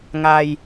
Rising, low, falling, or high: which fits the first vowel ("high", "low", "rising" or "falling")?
low